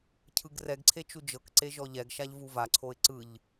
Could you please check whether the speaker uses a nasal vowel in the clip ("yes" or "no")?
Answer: no